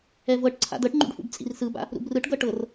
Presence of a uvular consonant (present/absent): absent